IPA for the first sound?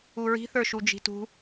u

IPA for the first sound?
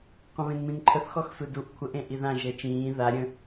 qʷ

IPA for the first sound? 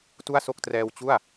t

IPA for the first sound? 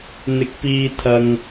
n̪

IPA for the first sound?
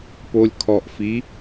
p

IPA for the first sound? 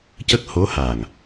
c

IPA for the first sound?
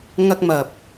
ŋ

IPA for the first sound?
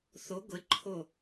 θ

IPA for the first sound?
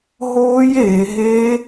ɦ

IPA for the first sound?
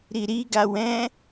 ɾ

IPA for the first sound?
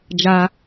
d͡ʒ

